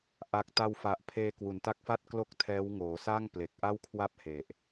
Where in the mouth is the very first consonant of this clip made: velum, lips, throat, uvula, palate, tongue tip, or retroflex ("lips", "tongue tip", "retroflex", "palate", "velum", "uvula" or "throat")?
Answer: throat